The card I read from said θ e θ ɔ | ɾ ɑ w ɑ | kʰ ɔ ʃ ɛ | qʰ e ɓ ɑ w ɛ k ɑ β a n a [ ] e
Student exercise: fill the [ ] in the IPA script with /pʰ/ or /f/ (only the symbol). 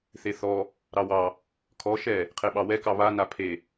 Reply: pʰ